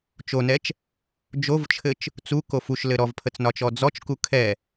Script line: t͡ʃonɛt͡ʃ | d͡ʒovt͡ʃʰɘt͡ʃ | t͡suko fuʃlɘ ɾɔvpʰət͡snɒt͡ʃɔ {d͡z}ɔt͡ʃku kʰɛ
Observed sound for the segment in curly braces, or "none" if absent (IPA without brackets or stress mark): d͡z